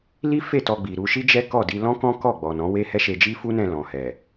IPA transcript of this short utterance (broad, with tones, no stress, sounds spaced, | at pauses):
l i˦ f e˦˨ t ɔ˧ ɡ͡b i˨ ɾ u˧ ʃ i˦ d͡ʒ ɛ˦ k ɔ˦˨ d i˧ l ɔ̃˦ k ɔ̃˦ k ɔ˦˨ ɡ͡b ɔ˨ n ɔ̃˨˦ w e˦ h ɛ˦ ʃ e˧ d͡ʒ i˦ f u˦ n ɛ̃˧ l ɔ̃˨ h ɛ˨